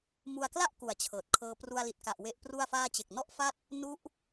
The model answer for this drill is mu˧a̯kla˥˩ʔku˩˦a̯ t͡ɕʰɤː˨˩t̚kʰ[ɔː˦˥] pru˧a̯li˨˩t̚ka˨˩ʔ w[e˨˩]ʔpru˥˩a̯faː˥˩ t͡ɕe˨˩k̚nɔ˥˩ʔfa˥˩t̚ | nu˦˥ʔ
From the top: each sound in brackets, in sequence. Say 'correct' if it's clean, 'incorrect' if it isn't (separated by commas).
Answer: incorrect, incorrect